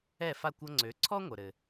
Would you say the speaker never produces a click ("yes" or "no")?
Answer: no